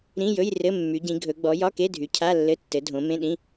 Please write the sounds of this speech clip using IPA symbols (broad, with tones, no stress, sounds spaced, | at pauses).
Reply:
ɾ ĩ˧˥˧ j ɵ˧˥˧ j r ɘ˧˥˧ mː y˨˦ ɟ ĩ˨˦ ɡʱ ɵ˨˦ ɡ͡b ɔ˨˦ j ɒ˧˥˧ k e˧˥˧ dʱ y˨˦ cʰ a˧˥˧ lː ɘ˧˥˧ tː ɘ˨˦ dʱ õ˨˦ m ẽ˧˥˧ ɗ ĩ˧˥˧